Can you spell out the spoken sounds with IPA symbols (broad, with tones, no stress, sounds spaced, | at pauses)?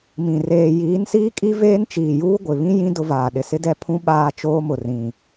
m ĩ˨ r eː˨ j iː˨˦ n s iː˦ kʼ i˦ v eː˦ n t͡ʃ iː˨ j uː˦ ɡʷ ɪ˨ β ĩ˦ j ĩ˦ d ʊ˦ v aː˨ ɗ ɪ˨ s ɪ˦ d ɛ˦ pʰ ũ˦ ɓ aː˦ t͡ʃ oː˦ m ʊ˨ r ĩ˨